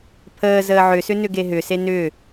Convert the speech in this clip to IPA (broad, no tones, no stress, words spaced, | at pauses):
pʰəː zəːʕʏsʏ nʏɡeɦʏse nʏ